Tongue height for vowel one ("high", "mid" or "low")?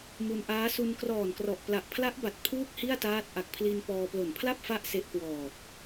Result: high